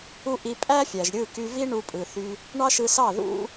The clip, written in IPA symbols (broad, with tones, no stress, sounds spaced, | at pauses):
u˦ ʔ i˧ pʼ æ˦ fʲ æ˨ ʒ ɾʲ ɯ˦˨ k y˧ v i˦ ɳ u˧ pʼ ɯ˨ θ y˧ | ɳ ɑ˦ ʃ ɯ˧ s ɑ˦˨ ð ṵ˦